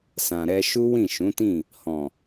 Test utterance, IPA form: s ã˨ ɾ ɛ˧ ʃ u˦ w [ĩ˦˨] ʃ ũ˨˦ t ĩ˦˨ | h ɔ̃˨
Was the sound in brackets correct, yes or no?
yes